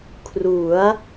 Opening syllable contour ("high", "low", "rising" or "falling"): rising